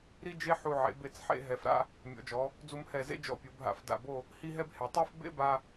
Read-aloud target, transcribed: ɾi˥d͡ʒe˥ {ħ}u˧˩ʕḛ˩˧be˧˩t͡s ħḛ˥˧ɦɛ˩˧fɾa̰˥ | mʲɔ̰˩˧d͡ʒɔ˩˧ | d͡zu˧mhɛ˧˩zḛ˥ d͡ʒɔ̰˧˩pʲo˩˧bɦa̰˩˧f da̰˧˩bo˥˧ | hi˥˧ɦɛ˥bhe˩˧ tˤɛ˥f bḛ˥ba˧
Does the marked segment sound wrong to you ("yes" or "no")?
no